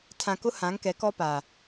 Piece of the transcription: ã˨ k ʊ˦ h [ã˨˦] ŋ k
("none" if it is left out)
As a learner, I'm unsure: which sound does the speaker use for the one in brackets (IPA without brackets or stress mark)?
ã˨˦